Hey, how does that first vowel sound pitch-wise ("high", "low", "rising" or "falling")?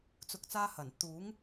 rising